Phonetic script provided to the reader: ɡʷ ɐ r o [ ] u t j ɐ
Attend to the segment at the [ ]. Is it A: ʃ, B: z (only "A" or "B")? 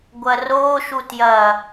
A